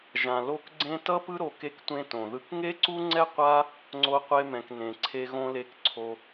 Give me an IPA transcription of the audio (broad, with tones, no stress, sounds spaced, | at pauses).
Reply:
ʒ ã˩ l o˦ k ɡ͡ǀ ẽ˥ t ʌ˥ p ɯ˦ ɾ o˨ k e˥ k tʷ ẽ˥ t õ˩ ð ɯ˦ k ŋ e˥ ǀ u˥ ŋ͡ǀ ɛ˥ qʷ a˥ | ŋ͡ǀ o˦ qʷ e˦ m ɛ̃˨ k n ẽ˩ ǀʰ e˦ ɣ õ˥ l e˦ k ǀʰ o˦